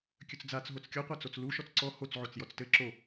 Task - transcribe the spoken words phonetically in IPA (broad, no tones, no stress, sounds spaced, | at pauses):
kʲ ɵ t͡s d͡z a t͡s ɦ o t͡s kʲ ɔ qʷ a t͡s o t͡s l u ʃ ɔ t͡s ǀ ɔ h o t͡s ʕ o t͡s j ɔ t͡s t ɘ ǁ o